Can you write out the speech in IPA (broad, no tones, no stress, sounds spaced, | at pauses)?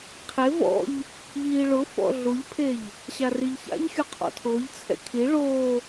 qʰ e v ɔ̰ ʎ | ʎ iː ɭ ʊ f ɔ̰ ɮ u ʎ pʰ e ʎ | ɕ a r i ʎ ç a̰ ʎ xʲ u qʰ ɔ̰ tʰ ʊː ʎ t͡sʰ ɛ̰ kʰ i ɭ oː